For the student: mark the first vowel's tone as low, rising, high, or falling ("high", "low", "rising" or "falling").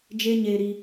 high